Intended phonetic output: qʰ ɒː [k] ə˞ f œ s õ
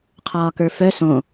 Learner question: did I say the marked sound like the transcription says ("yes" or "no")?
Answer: yes